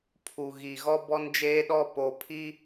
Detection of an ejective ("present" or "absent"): absent